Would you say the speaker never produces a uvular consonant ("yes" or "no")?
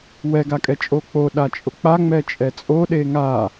yes